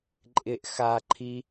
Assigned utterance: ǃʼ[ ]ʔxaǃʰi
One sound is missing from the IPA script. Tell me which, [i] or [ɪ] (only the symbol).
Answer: ɪ